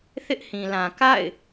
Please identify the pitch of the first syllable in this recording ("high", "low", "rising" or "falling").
high